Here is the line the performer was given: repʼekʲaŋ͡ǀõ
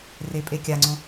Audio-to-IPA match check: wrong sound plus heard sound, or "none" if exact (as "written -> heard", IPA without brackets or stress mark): none